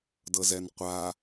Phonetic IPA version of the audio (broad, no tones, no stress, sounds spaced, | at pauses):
d ɤ z ɛ n qʷ a